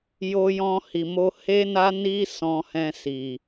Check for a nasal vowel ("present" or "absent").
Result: present